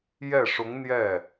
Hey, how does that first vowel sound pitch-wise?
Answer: falling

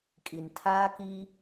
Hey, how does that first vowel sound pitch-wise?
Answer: low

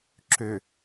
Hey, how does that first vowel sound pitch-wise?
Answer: low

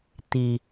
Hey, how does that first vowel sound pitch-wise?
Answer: low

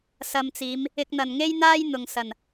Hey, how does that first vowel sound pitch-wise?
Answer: low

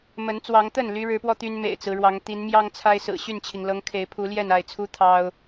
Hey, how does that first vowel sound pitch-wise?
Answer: rising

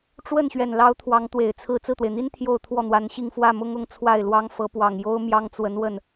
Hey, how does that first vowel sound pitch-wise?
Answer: falling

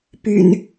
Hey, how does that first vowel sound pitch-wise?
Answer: low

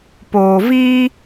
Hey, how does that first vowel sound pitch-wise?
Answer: low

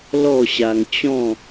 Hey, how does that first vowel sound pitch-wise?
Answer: falling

